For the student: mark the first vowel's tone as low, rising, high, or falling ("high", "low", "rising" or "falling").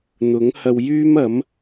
rising